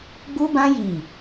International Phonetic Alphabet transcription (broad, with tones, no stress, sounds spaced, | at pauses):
ɡ͡b u˦ b ã˦ j i˦˨